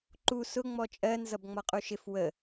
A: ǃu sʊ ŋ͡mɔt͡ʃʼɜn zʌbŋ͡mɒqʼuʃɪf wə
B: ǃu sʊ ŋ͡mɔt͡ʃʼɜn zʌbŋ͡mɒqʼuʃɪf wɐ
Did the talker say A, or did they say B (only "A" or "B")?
A